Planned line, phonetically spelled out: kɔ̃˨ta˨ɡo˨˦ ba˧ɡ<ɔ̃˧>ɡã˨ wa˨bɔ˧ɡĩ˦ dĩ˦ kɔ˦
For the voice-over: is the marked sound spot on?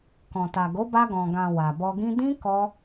no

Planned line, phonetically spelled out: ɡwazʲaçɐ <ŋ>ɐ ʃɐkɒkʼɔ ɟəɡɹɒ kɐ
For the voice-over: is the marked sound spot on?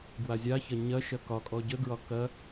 no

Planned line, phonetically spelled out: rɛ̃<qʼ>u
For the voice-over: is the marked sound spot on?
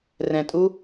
no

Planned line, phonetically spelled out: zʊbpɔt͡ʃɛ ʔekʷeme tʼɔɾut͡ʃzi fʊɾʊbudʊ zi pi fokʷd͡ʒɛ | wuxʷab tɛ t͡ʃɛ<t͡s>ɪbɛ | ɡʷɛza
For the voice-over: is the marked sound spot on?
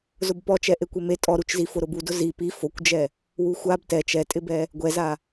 no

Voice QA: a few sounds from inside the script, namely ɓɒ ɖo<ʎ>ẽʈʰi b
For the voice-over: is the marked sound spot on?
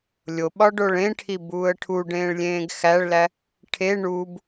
no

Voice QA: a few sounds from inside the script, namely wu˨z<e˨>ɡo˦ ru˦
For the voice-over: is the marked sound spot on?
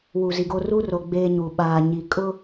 no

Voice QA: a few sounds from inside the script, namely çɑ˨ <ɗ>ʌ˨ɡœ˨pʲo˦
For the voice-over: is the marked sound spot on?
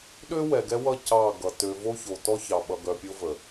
no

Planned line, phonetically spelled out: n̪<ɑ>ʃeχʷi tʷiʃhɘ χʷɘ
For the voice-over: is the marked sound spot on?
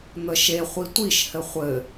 no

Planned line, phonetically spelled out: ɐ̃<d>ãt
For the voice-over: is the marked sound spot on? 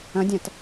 no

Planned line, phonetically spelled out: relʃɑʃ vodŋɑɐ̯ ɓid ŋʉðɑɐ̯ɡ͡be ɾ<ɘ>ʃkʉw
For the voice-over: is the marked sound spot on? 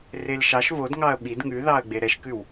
no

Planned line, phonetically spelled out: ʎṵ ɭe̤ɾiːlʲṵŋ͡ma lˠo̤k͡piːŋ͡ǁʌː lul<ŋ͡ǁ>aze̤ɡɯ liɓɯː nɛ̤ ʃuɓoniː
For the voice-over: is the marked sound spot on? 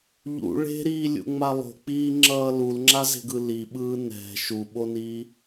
yes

